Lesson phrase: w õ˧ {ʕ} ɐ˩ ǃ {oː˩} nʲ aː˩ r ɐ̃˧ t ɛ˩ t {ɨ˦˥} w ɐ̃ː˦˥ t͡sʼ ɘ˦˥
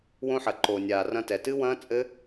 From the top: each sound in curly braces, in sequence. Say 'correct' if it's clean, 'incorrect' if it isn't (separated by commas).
incorrect, correct, correct